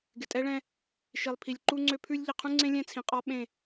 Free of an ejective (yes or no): no